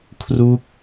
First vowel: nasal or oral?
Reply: oral